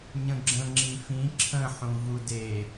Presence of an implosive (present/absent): absent